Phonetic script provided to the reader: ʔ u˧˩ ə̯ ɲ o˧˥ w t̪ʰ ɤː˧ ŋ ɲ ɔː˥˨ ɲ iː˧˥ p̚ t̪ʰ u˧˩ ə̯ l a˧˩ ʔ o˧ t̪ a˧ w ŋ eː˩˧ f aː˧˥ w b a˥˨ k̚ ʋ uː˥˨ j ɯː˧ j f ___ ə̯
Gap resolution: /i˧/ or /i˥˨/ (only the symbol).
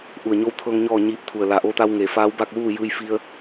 i˧